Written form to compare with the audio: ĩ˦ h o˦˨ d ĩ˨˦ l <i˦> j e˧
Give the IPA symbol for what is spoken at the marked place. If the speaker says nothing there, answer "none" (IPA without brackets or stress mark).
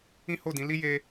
i˦